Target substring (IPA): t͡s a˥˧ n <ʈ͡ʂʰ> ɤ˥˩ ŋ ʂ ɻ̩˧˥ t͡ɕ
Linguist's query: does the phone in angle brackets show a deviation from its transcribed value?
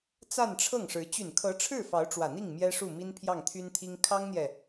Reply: no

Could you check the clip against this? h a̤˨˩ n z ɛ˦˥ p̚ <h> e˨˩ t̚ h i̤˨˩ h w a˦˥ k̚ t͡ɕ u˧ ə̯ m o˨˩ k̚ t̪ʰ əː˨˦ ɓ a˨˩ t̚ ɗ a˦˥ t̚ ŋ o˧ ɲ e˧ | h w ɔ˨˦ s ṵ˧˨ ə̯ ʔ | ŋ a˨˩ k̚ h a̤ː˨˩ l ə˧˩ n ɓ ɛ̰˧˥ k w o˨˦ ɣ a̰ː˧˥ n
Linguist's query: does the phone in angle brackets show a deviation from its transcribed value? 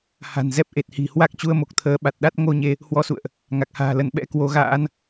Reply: yes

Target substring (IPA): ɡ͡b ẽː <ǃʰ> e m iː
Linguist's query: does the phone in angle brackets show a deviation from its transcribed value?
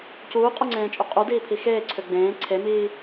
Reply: yes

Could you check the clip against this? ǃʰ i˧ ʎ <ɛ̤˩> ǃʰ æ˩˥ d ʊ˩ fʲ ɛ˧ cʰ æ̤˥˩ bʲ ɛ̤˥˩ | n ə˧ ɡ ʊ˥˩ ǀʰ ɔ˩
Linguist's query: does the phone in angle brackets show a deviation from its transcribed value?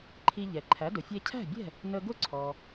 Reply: yes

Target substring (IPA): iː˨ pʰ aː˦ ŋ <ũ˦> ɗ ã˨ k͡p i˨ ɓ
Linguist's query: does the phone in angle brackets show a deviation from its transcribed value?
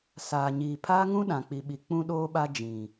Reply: no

